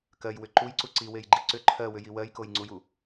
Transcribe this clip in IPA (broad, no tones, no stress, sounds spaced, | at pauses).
k ɜ j w ʏ ǃ u j ǀ u ǀ i w e j ɡ͡ǃ i ǀ ʏ ǃʰ ɜ w ʏ j i w ɜ j k o j ŋ͡ǀ u j u